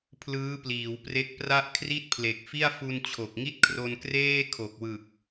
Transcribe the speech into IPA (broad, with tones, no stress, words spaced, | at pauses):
pʰlɯː˦˥pliː˩˦wpre˦˥k̚pra˥˩ʔ kʰri˥˩t̚pʰle˨˩k̚fi˥˩a̯ fu˧nt͡ɕʰo˨˩k̚ŋi˥˩t̚ kʰro˧nkreː˥˩ kʰo˨˩k̚wɯ˨˩k̚